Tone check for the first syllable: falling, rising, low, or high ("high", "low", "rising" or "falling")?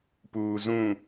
low